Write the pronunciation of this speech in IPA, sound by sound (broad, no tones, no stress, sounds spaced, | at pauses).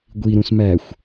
ɡʷ i ɾ ũ s m æ xʷ